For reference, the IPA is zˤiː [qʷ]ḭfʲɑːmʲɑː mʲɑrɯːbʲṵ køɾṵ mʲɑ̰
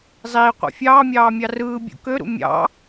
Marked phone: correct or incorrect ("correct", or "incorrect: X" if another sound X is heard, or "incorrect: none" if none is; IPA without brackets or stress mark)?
correct